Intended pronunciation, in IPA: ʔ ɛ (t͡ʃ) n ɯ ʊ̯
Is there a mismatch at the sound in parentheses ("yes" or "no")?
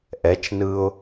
no